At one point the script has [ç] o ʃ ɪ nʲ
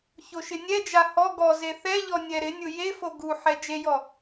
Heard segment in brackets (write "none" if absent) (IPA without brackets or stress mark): ç